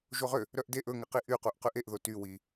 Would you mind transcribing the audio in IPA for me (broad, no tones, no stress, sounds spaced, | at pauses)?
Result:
ʒ o ʁ ø | ɾ œ ʔ d e ʔ ɵ ŋ ɛ q i ʔ y q u ʔ q ʉ ʔ e ʔ ð o t y w i